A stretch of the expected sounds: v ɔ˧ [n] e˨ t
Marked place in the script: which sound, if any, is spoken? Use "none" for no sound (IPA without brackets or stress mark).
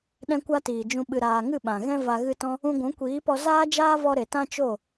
ɾ